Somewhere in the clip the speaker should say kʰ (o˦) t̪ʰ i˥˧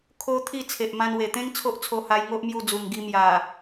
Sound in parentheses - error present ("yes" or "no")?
no